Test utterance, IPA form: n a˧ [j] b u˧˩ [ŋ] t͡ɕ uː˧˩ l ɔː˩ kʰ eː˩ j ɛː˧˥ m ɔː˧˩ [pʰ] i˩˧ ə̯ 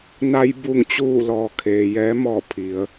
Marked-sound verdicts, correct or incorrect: correct, correct, correct

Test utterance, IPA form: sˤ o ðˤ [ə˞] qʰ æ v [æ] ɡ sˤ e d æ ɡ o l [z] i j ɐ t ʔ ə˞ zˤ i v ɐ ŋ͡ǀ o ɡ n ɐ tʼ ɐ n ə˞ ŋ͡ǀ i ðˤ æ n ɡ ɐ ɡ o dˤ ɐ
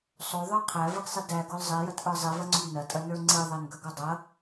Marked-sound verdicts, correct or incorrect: correct, incorrect, incorrect

